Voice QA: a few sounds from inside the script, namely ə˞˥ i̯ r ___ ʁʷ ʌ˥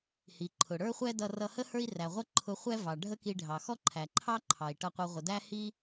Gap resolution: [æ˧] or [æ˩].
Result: æ˩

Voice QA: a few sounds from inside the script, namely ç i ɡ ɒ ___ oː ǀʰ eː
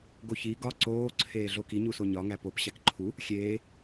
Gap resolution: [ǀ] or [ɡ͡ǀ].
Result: ǀ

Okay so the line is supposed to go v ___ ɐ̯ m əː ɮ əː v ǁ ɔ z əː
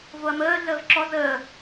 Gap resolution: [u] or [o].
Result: o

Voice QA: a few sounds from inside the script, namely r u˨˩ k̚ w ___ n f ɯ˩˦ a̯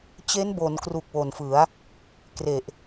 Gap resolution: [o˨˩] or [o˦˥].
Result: o˨˩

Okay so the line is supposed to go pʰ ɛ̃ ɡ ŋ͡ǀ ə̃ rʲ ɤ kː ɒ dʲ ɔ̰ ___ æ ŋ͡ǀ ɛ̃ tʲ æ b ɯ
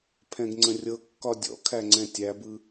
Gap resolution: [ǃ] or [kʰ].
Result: kʰ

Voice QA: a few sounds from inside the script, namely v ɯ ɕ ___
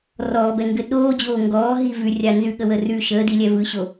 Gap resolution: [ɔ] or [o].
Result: o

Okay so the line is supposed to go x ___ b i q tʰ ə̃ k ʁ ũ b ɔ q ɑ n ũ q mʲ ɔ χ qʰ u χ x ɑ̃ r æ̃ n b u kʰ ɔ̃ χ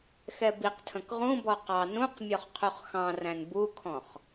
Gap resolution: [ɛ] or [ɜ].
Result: ɛ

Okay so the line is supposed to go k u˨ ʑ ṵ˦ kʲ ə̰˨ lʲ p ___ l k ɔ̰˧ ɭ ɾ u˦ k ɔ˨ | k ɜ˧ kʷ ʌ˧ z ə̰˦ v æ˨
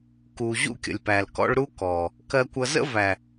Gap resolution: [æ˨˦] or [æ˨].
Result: æ˨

